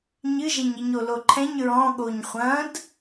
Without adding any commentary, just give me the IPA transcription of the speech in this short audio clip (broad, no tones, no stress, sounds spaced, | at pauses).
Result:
ɲ ɨ ʒ ɛ ɲ i ɲ o l o ǃʰ ɛ̃ ɲ ɹ ɔ̃ ɠ o ɲ χʷ ɐ̃ d